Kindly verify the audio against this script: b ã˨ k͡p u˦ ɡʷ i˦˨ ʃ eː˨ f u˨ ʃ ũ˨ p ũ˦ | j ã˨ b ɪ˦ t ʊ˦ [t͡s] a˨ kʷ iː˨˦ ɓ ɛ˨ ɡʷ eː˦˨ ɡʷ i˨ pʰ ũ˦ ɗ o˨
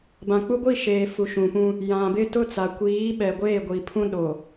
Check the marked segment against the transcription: correct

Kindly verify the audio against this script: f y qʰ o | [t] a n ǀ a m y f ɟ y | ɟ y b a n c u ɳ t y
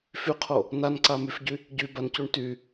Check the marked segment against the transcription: incorrect: n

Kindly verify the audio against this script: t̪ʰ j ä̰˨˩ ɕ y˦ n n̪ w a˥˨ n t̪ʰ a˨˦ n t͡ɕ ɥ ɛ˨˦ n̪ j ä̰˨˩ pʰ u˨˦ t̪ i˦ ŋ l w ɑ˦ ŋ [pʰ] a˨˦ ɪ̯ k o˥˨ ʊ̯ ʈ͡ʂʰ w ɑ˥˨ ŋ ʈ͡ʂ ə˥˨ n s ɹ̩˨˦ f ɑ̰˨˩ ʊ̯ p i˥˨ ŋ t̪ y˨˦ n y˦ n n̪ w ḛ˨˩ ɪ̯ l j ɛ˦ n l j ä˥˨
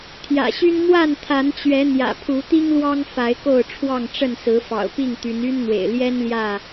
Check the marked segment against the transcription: incorrect: f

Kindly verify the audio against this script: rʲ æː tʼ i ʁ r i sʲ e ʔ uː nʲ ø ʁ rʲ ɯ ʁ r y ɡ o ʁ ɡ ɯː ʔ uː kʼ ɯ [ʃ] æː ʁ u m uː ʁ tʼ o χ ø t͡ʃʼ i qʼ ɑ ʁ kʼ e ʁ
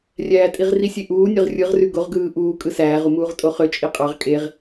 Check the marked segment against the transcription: incorrect: s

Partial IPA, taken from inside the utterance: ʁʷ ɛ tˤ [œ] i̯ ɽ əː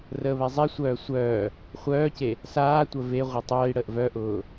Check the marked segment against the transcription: incorrect: œː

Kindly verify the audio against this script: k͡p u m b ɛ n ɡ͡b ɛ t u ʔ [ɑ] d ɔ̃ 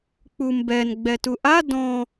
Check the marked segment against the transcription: incorrect: a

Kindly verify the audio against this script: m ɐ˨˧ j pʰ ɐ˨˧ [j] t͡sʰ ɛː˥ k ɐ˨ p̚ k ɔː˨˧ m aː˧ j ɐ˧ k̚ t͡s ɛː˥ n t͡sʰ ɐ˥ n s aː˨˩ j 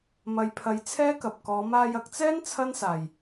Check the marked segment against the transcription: correct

